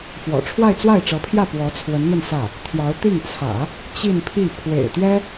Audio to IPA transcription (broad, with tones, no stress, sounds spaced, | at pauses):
f w ɔ̰˨˩ ʈ͡ʂʰ w a˥˧ ɪ̯ t͡s w a˥˩ ɪ̯ ʈ͡ʂ ɤ˧˥ pʰ j ä˥˩ p w ɔ˧˥ t͡sʰ w ə˧˥ n n̪ ə˥˧ n s ä˥˩ | t̪ʰ j ɑ˧˥ ʊ̯ t̪ i˥˩ ŋ t͡sʰ ä̰˨˩˦ | t͡ɕ i˥˧ n pʰ i˥˩ pʰ w ḛ˨˩ ɪ̯ t̪ ɥ ɛ˥